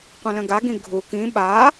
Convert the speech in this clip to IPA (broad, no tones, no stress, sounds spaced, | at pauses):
qʷ ə̃ l ə̃ ɡ a ɡ ĩ ɡʱ u k ĩ ɓ a